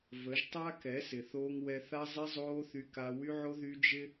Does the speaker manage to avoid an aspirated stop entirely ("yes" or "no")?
yes